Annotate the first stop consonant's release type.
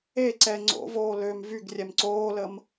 click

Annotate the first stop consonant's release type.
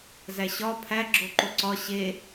aspirated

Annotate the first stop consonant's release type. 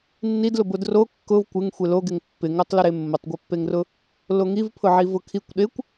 plain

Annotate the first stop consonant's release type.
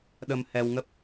implosive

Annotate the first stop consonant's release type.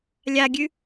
plain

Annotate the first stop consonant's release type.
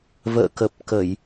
plain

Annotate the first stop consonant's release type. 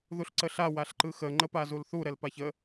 click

